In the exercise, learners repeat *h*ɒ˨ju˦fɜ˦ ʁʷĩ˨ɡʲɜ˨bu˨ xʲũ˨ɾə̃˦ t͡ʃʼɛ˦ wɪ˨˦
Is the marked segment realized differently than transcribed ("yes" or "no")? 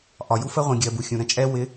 yes